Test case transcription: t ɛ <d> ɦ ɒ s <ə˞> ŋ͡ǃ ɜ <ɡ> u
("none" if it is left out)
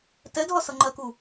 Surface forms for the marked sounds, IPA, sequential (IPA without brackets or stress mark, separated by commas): d, ʌ, k